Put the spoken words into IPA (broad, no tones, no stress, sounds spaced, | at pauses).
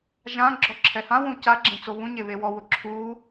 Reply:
ʒ ã ɡ͡ǁ ɔ ǁʰ ɛ h ã w ũ c a ɡ͡ǁ ẽ t͡s o β ũ ɲ e β e w ɔ w ʊ ǁʰ u